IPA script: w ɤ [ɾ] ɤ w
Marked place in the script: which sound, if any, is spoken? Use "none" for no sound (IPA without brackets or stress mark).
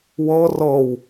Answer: r